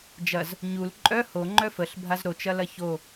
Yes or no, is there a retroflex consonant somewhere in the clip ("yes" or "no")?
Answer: no